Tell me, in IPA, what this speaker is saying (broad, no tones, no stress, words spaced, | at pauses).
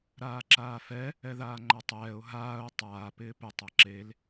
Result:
ɾaːǁaːfɛ | ɛðaːŋ͡ǃatˤɛːʊ̯ ɦaːʊ̯ tˤaː pɪːpɪ tˤaǁel